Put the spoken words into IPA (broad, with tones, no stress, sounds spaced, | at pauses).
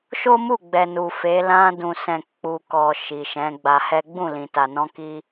ʃ o˦ m u˦˨ ɡ͡b ɛ˨ n u˨ f e˨˦ l ã˧ d ũ˨ s ɛ̃˨ k͡p u˨ k ɔ˨ ʃ i˨ ʃ ɛ̃˨˦ ɡ͡b a˧ h ɛ˦ ɡ͡b ũ˦˨ l ĩ˨ t a˨ n ɔ̃˧ k i˧